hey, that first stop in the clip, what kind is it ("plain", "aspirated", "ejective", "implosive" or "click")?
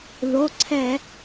click